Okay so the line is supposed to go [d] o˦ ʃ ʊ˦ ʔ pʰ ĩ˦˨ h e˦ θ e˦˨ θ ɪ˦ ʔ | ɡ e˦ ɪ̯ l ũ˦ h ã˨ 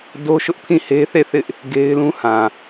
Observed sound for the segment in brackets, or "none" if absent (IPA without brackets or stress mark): d